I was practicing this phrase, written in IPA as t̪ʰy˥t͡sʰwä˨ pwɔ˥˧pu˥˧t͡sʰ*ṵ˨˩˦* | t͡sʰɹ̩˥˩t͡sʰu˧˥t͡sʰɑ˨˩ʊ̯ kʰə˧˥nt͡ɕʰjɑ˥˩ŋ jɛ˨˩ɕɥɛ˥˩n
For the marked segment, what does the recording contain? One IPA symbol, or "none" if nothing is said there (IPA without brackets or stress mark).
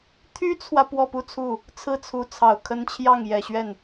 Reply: u˥˩